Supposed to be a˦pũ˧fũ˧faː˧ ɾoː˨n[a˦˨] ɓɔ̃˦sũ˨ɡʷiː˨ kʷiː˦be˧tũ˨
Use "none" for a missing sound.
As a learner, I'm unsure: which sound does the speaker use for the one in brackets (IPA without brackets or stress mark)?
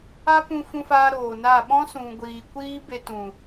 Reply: a˦˨